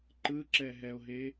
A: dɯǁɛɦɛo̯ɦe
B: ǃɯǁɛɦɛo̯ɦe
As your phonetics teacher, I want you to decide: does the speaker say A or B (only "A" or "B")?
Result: B